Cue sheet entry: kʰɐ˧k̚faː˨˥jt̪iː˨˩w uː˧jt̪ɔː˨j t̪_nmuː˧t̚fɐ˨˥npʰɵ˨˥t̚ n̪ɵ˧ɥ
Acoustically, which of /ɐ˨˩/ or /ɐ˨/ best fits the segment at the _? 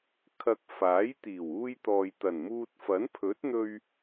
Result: ɐ˨˩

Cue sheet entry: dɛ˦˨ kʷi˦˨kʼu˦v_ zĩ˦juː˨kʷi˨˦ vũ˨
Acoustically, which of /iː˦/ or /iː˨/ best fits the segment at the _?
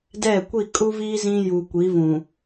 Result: iː˦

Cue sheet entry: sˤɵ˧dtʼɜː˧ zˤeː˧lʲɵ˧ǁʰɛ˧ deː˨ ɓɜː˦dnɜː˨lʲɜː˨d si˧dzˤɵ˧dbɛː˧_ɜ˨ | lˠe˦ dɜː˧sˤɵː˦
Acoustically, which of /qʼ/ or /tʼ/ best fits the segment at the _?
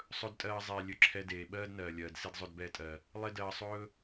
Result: tʼ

